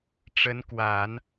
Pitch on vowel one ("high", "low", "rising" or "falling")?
rising